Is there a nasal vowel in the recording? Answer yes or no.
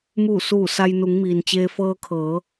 no